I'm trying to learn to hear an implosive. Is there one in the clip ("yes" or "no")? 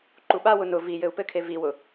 yes